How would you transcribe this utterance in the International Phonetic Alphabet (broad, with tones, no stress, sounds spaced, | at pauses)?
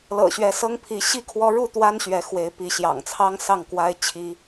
l ɤ̰˨˩ ɕ ɥ ɛ˨˦ s ɤ˦ ŋ pʰ i˨˦ ɕ i˥˨ kʰ w ɔ˦ ɻ u˥˨ t̪ w a˦ n ɕ ɥ ɛ˨˦ x w e˨˦ ɪ̯ p i˨˦ ɕ j ɑ̰˨˩ ŋ t͡sʰ ɑ˦ ŋ s ɑ˥˨ ŋ k w a˦ ɪ̯ t͡ɕʰ i˦